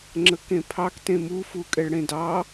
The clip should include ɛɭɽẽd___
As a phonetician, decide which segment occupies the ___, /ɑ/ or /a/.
ɑ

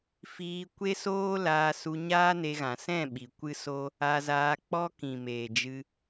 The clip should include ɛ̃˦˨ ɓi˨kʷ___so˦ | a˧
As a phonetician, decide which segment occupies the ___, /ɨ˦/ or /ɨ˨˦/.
ɨ˦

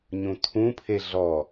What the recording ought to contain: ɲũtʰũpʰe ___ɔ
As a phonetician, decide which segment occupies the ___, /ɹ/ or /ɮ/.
ɮ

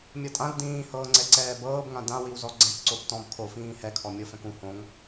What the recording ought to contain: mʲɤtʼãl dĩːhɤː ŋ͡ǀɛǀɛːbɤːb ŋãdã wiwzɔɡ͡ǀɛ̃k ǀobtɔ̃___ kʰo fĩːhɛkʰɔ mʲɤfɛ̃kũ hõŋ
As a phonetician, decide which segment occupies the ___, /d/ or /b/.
b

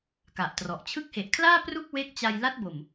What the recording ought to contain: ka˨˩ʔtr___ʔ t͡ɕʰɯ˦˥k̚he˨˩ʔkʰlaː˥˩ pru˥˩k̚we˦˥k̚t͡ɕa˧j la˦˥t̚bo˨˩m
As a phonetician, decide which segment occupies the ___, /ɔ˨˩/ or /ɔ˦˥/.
ɔ˨˩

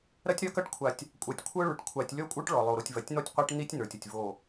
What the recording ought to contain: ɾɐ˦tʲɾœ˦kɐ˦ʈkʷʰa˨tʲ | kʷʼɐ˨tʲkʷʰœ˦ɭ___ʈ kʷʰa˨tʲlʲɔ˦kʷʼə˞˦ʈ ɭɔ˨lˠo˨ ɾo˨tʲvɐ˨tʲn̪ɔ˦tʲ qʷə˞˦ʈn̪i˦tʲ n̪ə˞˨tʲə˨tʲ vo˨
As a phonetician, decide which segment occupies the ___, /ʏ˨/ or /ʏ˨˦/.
ʏ˨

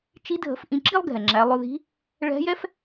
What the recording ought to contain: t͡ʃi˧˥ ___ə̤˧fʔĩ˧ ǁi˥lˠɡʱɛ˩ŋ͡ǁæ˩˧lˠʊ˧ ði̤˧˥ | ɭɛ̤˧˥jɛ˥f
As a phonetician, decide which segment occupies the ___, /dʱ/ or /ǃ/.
dʱ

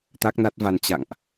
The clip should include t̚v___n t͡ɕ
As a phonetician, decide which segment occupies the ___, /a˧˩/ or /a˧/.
a˧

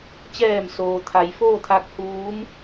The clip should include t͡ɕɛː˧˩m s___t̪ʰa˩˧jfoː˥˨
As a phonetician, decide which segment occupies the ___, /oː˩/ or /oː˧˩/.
oː˩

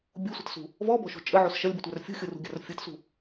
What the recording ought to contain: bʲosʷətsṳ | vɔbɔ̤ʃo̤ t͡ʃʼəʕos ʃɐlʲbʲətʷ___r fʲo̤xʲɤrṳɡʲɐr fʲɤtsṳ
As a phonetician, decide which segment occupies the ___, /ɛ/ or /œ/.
œ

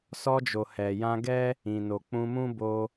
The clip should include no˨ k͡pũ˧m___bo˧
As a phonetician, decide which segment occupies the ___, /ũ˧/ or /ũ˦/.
ũ˦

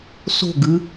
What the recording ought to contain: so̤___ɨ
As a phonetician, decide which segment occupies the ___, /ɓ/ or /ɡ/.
ɡ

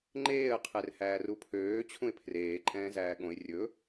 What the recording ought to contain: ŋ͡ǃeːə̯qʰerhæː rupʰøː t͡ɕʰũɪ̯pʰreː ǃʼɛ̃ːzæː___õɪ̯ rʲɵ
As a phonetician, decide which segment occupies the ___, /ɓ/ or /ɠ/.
ɠ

